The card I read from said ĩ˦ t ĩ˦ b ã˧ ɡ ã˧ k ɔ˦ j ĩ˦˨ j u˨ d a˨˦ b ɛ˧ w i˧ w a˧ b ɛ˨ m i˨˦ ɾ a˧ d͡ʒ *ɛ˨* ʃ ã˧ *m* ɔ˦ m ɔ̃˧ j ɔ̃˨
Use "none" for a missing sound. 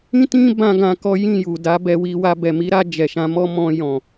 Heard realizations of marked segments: ɛ˨, m

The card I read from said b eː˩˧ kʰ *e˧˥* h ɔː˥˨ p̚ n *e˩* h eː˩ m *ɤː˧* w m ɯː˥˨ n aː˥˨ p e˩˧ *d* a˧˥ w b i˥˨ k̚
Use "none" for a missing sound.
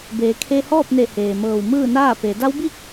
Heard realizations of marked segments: e˧, e˧˩, ɤː˧˩, d

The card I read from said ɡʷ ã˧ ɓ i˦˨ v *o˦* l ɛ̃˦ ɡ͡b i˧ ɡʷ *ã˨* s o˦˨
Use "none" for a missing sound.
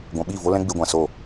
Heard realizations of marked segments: o˦, ã˧

